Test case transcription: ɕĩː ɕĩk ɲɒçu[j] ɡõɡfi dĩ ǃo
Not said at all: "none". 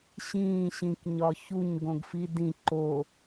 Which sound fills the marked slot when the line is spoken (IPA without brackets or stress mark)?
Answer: ɲ